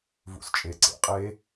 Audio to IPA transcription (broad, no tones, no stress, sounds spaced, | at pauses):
v ṵ s t͡ʃʼ e ǀ ḛ qʼ e